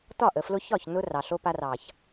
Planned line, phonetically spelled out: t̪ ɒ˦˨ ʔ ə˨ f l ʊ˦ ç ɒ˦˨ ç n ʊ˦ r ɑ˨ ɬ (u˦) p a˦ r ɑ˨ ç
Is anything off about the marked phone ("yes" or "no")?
yes